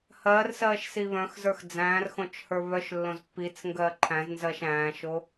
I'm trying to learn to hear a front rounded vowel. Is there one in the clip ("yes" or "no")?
yes